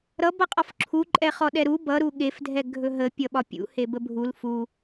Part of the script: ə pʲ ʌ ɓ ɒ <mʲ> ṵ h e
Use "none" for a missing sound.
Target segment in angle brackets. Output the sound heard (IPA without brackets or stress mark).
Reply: pʲ